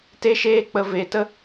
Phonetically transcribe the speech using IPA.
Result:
t e˦ ʃ eː˦ k͡p ə˧ v e˧ t ə˦

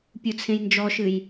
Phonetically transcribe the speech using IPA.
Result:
pʲ u t͡sʰ ẽ j n d͡ʒ ɔ ʃ ɨ j

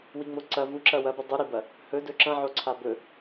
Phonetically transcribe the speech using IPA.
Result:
w i ŋ͡m o ǀ ɐ v u ǁ ɐ w ɐ b ɨ dˤ u ɾ i b ɐ | h ɵ d ɵ ǁ ɐ̃ ʕ o ǀʰ a b ɵ

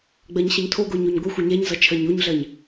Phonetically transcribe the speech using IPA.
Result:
ɡ͡b ɜ ɲ ɕ ʌ ɲ tʰ o ɡ o ɲ o ɲ ɡʷ ə xʷ ʌ ɲ ɛ ɲ z ʌ t͡ʃʰ ɜ ɲ o ɲ ɮ ɜ ɲ

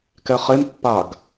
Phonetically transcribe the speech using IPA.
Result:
k ɛ χ e m pː a ɡ

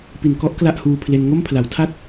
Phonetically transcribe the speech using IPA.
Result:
p i˨˩ n k ɔ˦˥ ʔ k l a˥˩ ʔ h uː˧ pʰ l e˧ n ŋ o˥˩ m pʰ l a˩˦ w tʰ a˥˩ t̚

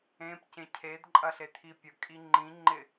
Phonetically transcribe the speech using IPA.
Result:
ẽ p c ẽ cʰ e d ǃʼ ɐ ɬ e t̪ʰ i pʲ ə kʼ i ŋ͡ǃ ĩ ŋ͡ǃ ɪ

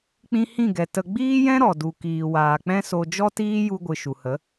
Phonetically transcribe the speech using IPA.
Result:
k͡p ĩ˧ h ĩ˦˨ ɡ ɛ˨ t ə˧ ɡ͡b iː˦ j ɛ̃˦ ɾ ɔ˨ d u˨ k iː˨ w aː˨ k͡p ɛ̃˦ s o˧ d͡ʒ ɔ˦ t iː˦ j u˧ ɡʷ ɨ˨ ʃ u˨ h ə˨˦

